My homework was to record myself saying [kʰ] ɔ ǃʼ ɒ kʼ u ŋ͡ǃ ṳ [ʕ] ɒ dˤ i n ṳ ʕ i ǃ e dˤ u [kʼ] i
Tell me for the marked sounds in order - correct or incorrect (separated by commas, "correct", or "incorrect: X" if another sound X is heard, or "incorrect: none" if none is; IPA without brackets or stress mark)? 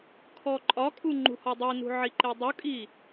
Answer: correct, incorrect: h, correct